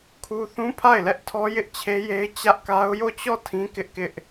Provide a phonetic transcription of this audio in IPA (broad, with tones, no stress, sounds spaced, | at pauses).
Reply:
kʰ u˦ θ ũ˦ pʰ a˦˨ ɪ̯ l ɛ˦ ʔ tʰ ɔ˦ j ɪ˦ ʔ t͡ɕʰ e˦ j e˦ ɪ̯ t͡ɕ ä˦ ʔ k a˦ ʊ̯ j o˦˨ t͡ɕ ɔ˦˨ tʰ ĩ˦ k ɪ˦ ʔ k ɪ˦ ʔ